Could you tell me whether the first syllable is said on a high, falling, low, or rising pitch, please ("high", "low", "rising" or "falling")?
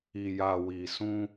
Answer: low